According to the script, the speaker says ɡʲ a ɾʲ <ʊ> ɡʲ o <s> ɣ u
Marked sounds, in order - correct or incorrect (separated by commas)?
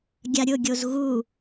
correct, incorrect